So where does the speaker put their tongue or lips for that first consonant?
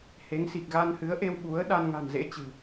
throat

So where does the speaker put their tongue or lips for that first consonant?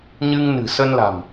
palate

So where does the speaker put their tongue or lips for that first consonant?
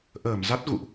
throat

